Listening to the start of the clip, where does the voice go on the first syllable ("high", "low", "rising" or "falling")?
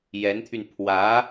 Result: rising